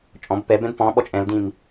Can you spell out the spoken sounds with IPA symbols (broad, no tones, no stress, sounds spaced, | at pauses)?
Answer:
t͡ʃʼ ɔ̃ b p ɛ b ɛ̃ d p ɔ̃ ɓ ɔ t͡ʃʼ ɛ̃ l d ĩ m